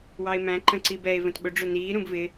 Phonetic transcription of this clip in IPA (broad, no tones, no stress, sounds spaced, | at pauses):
w ɑ e̯ m æ̃ ǃ ə̃ ǀ i b ɛ e̯ v ə̃ t ɓ ʊ ɖ͡ʐ ʊ n iː ɾ ũ b v ɪ